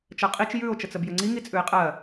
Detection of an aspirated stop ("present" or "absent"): absent